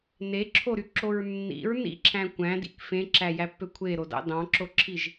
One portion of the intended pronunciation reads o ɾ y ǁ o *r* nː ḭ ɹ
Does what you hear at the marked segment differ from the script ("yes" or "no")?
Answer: yes